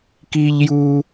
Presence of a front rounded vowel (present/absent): absent